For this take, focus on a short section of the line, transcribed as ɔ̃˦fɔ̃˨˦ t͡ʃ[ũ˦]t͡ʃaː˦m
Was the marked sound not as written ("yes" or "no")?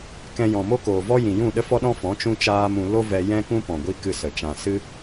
no